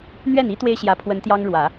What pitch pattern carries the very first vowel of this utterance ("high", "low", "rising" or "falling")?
falling